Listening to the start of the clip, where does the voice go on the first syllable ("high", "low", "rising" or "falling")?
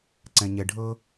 low